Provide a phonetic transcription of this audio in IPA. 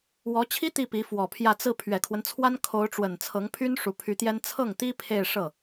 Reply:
w ɔ˧˥ t͡ɕʰ i˥ t̪ i˥˩ p i˧˥ f w ɔ˨˩ pʰ j ä˥˧ t͡s ɹ̩˥˩ pʰ ɥ ɛ˨˩ kʰ w ə˦ n t͡sʰ w a˥ n kʰ o˧˥ ʊ̯ ʈ͡ʂ w ə˨˩ n t͡sʰ ɤ˧˥ ŋ pʰ y˥ n ʂ u˧˥ pʰ y˧˥ t̪ j ɛ˥ n t͡sʰ ɤ˥˩ ŋ t̪ i˥ pʰ e˥˧ ɪ̯ ʂ ɤ˥˩

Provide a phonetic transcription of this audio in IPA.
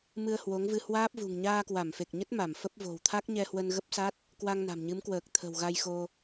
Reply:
m ɨ˧ ə̯ h w o˨˦ ŋ v ɨ˧ h w aː˦˥ p̚ v ṳ˨˩ ŋ ɲ aː˧ k w a˧˩ m f e˨˩ k̚ ɲ ə˦˥ t̚ m a˧˩ m f ə˦˥ p̚ v o̤˨˩ w t̪ʰ a˦˥ k̚ ɲ ɛ˧ h w ə˧ n ɣ ə˦˥ p̚ s a˦˥ t̚ | k w a˧ ŋ n a̤˨˩ m ɲ ɨ˨˦ m k w əː˨˩ k̚ t̪ʰ ə̤˨˩ w ɣ a˧ j x o˧

